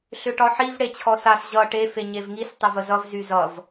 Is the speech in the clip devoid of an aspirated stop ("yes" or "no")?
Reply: no